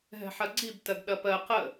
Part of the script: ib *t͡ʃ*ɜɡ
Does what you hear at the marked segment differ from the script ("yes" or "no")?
yes